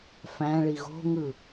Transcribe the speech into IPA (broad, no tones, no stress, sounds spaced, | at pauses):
f æ̃ ɭ i ɣ o̤ ŋ ɯ